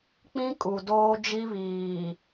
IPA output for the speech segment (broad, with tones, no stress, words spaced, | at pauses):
k͡pĩ˦ kʼu˨doː˦ d͡ʒi˦βiː˨